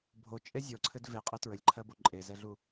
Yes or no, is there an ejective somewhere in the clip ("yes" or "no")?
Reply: yes